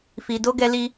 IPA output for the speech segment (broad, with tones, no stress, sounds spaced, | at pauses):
f i˧ d o˦ ɡ ɛ˦ l i˦